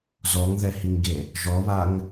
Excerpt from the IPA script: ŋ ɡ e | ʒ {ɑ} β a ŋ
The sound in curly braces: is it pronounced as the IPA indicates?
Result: no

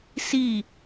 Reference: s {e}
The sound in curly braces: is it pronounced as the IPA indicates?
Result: no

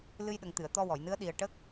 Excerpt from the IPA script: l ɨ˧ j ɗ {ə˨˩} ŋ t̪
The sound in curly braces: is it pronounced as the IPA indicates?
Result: yes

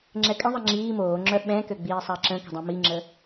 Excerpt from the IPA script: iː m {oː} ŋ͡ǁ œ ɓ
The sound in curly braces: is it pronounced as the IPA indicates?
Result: yes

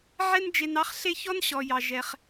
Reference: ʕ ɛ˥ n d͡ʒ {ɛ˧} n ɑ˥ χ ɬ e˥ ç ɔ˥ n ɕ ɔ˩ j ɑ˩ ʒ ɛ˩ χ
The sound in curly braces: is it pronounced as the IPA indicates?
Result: no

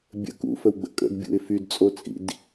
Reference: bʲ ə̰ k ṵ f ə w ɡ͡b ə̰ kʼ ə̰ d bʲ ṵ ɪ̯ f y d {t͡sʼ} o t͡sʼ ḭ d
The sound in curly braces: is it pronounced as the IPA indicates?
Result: yes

